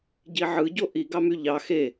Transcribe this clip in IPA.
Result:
ɟ i ʕ ɯ ɟ o ʔ i ɡ ɑ m y ʎ ɑ x e

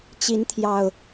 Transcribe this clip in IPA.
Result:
t͡ɕ i˨˦ n t̪ʰ j ɑ˨˩ ʊ̯

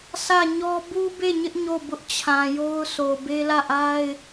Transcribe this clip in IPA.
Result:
sʰ ä˦˨ ɲ ɔ˦ b u˦ b e˦˨ ɲ ɪ˦ ʔ ɲ o˦˨ b ʊ˦ ʔ t͡ɕʰ ã˨ j o˦ ʊ̯ sʰ o˨ b e˦ l ä˦˨ ʔ a˦ ɪ̯

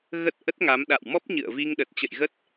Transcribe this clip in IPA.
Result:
ɣ ə˦˥ t̚ ʔ ə˦˥ t̚ ŋ a˨˦ m ɗ a̰˧˨ w m ɔ˦˥ p̚ ɲ ɨ̰˧˨ ə̯ v i˧ ŋ ɗ ə˨˩ t̚ t͡ɕ ə̰˧˨ j ɣ ə˦˥ t̚

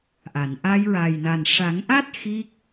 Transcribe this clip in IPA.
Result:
ʔ a˨˩˨ n ʔ a˧ j ɹ a˨˩ j n a˨˩ n ʂ a˨˩˦ ŋ ʔ a˦˥ t̚ x i˦˥ k̚

